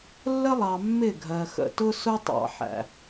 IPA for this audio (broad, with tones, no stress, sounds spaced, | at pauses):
lː ə˦ lˠ ɑ˨ mː ɪ˦˨ ɡʱ ɜ˨ x ə̰˨ t ʊ˦ s ʊ˦ tˤ ɑ̰˨ ħ æ̰˨